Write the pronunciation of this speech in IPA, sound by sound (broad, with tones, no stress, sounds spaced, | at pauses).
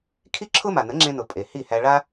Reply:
kʰ i˥ ǁʰ ʊ˥ m a˩ n ə˩˥ ŋ͡ǁ ẽ˧ n ʊ˩ pʼ e˩ h i˥˩ h æ˧ ɭ a˥